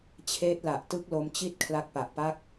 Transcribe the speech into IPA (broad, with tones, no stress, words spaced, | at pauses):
t͡ɕʰeː˦˥t̚la˨˩ʔ tɯ˦˥k̚lo˧mt͡ɕi˥˩t̚ kʰla˦˥k̚pa˨˩ʔpa˥˩k̚